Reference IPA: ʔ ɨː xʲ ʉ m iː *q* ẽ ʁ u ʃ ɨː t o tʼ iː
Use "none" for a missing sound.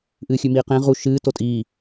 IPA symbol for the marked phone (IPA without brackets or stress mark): q